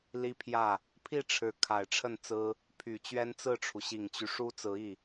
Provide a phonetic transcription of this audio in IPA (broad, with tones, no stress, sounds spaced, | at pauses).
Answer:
l i˥ pʰ j ä˥˩ | pʰ i˥˩ ʈ͡ʂʰ ɻ̩˧˥ kʰ a˨˩ ɪ̯ ʈ͡ʂʰ ə˥˩ n t͡s ɹ̩˥ | pʰ y˨˩ t͡ɕ ɥ ɛ˥ n t͡s ɹ̩˥˩ ʈ͡ʂʰ u˩ ɕ i˨˩ ŋ t͡ɕ y˦ ʂ u˥ t͡s ɹ̩˧˥ i˥˩